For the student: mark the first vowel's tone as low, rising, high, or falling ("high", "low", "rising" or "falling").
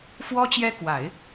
high